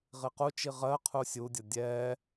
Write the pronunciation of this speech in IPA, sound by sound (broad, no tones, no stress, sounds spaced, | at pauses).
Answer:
ʁ i q u t͡ʃ i ʁ ɜ qʰ u sʲ u dʲ ʌ dʲ ɛ